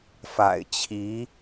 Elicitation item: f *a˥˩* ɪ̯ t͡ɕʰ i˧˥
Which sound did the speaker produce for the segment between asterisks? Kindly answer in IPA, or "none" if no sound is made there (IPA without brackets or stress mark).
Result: a̰˨˩